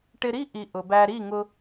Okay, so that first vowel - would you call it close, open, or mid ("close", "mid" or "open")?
close